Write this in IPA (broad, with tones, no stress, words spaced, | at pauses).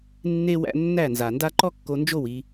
nːe˦wæ̰˦ nːæ˦˨nza˨nda˦ ǃɔ˦kːo˧nd͡ʒo˦˨w i˧